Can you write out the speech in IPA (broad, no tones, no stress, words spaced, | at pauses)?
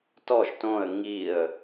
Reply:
tɔʒ tõə̯ ŋiə̯